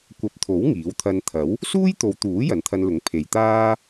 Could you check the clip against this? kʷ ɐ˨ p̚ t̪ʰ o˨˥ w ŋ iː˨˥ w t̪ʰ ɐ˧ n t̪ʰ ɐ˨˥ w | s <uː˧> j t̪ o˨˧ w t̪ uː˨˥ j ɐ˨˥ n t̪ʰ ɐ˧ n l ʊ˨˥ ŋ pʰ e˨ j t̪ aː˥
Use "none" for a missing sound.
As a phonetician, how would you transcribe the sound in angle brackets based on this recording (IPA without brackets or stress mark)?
uː˥